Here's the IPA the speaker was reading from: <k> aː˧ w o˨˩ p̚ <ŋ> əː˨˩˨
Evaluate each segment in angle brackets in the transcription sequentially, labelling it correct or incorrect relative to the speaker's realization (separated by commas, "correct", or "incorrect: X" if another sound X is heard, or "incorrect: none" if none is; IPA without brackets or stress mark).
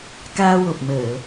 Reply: correct, incorrect: m